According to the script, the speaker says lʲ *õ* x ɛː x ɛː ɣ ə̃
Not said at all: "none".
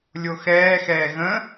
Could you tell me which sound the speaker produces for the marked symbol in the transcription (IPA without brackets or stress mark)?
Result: o